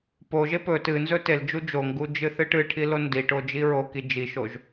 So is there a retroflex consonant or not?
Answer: yes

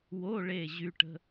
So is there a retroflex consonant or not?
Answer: yes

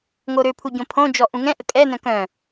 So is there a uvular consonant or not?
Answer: no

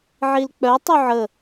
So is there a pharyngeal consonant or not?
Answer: yes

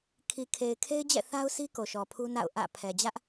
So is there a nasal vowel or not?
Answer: no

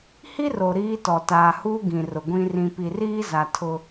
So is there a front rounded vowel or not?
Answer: no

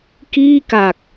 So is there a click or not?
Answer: no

